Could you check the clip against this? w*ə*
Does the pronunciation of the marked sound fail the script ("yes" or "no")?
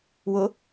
yes